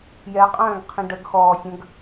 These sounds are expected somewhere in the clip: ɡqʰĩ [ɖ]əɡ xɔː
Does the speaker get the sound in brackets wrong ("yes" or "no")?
no